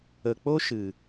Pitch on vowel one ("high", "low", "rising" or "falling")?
low